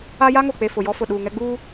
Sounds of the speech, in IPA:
a˦ja˦ ŋo˨k͡pe˨ fʊ˨jɔ˦ fʊ˨ɗuː˨ŋɛ˦ ɡ͡buː˦

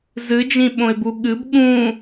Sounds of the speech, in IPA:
zɨd͡ʒĩɓõɪ̯bu ɠɨb ɠũ

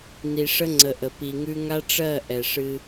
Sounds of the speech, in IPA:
ni˨ʂə˦ŋ͡ǀə˨ʔə˨ pi˨ŋʉ˦ ŋa˦ʈ͡ʂɜ˦˨ ʔɛ˨ʂɨ˦

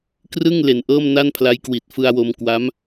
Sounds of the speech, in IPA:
krɯ˥˩ŋ le˨˩nʔɤː˥˩mna˥˩npʰla˦˥j kwi˨˩t̚fɯ˧a̯wo˧m kwa˦˥m

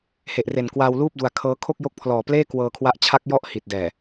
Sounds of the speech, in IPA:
he˨˩ʔre˨˩nkwaː˧w luː˥˩p̚du˧a̯ kʰɤː˦˥ kʰo˥˩k̚jo˦˥k̚pʰlɔː˨˩pleː˥˩ kwɤː˧kʰwa˦˥ʔ t͡ɕʰa˦˥k̚jɔ˥˩ʔ hi˨˩t̚dɛː˨˩

